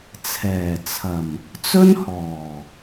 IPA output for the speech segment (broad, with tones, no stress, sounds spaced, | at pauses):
t͡sʰ ɛː˨˩ t͡sʰ ɐ˨˩ m | t͡s ɵ˥ n h ɔː˨˩